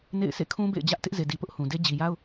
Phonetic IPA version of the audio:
n ḛ˦˨ ɪ̯ s ḛ˦˨ kʰ ũ˦ b ḛ˦˨ ɪ̯ d͡ʑ ä˦ ʔ t ɪ˦ ʔ z e˨ d i˨ p ʊ˦ ʔ h ũ˨ d e˦ d͡ʑ i˨ j a˦ ʊ̯

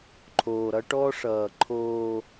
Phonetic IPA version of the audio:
ǃʰ oː˨ ɾ ʌ˦ ʈ ɔ˦ ʂ ʌː˨ ǃʰ oː˦

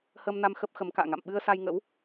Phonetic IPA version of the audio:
h ə˧ m n a˧ m x ə˦˥ p̚ x ə˨˦ m k a̰ː˧˨ ŋ a̰˧˨ m ɓ ɨ˧ ə̯ s a˧ j ŋ ə̰˧˥ w

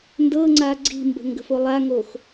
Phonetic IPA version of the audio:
n d ɤ ŋ͡ǀ a ɡ͡ǀ i̤ m b ə̤ ŋ ɡ ə̤ f o lˠ a ŋ o x

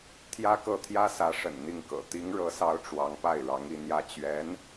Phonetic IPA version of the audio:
t̪ʰ j ä˥ k ɤ˥˩ t̪ʰ j ä˥ s ä˧˥ ʂ ə̰˨˩ n n̪ i˥˩ ŋ k ɤ̰˨˩ t̪ i˧˥ ŋ ɻ ɤ˧˥ s ɑ˧˥ ʊ̯ ʈ͡ʂ w ɑ˧˥ ŋ p a˥˩ ɪ̯ ɻ ɑ˧˥ ŋ i˥˧ n̪ j ä˥˩ t͡ɕ ɥ ɛ˧˥ n

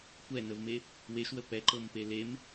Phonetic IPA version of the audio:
kʷ ɛ n ə v m e | w e ʃ w ə p ɛ ǃ ɤ m p e l e m

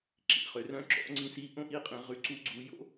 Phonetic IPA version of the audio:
ǁ ḭ˩ χ ø˩˧ r œ̃˥ ǁ ɔ̰˧˥ ŋ͡ǀ ĩ˧˥ s i˧˥ ʔ õ˥ ʔ i˧˥ qʼ ĩ˩˧ ʁ ʉ˧ ǀ u˧˥ ɡ͡ǀ u˧ j o̰˥

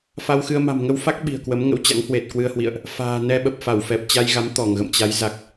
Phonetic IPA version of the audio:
f a˧ w x ɨ˧ ə̯ m a̤˨˩ m ŋ ə˧ w f a˦˥ k̚ ɓ i̤˨˩ ə̯ k w ə˨˦ m ŋ ə̰˧˥ w t͡ɕ a̰˧˥ ŋ h w e˨˩ t̚ k w ɨ˧ ə̯ h w ḭ˧˨ ə̯ ʔ | f a̤ː˨˩ n ɛ˧ ɓ ə˨˩ p̚ f a˧˩ w f ɛ˨˩ p̚ t͡ɕ a˧ j ɣ a˨˦ m t̪ ɔ˧˩ ŋ ɣ ə̰˧˨ m t͡ɕ a˨˦ j z a˨˩ k̚

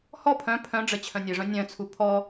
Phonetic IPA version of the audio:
h ɔ pʰ œ̃ pʰ œ̃ ɖ͡ʐ ə t͡ɕʰ œ̃ nʲ ɨ ʐ œ̃ nʲ œ̃ t͡sʰ u pʰ ɔ

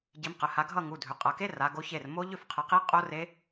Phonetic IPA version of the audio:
ɟ i˨˦ m q ə˩˧˩ h a˨˦ ɡʱ ʌ˥˨ ŋ u˩˧˩ dʱ ʏ˩˧˩ qʼ ʌ˩˧˩ k e˦˥ r a˨˦ ɡ o˨˦ ç e˩˧˩ r m o˦˥ ʎ ʏ˥˨ f qʰ ə˨˦ q i˦˥ qʼ o˦˥ r e˦˥

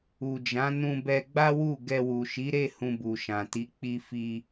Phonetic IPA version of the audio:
u˨ d͡ʒ ã˨˦ n ũ˧ b ɛ˧ ɡ͡b a˦ w u˦˨ ɡ ɛ˧ w u˨ ʃ i˨˦ ɾ e˦˨ h ũ˧ b u˨ ʃ ã˨ t i˨˦ k͡p i˧ f i˧

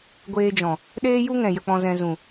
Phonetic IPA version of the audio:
ɡʷ eː˧ d͡ʒ ɔ̃˨ | ɗ eː˦ j u˦ ŋ ɛ̃˨ j ə˨ k͡p ɔ̃˨ z ɛ̃˨ z ũ˨

